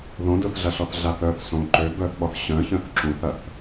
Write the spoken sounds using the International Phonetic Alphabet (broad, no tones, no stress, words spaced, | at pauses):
ðõ dʊθɮɐɬɔθ ɮaθœθ sõ ǃø bœθɓɔθ ɕœ̃çœ̃θ ǁũθɐθ